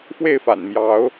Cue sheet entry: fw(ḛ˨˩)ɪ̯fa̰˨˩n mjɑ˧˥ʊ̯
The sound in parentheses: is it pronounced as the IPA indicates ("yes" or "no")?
no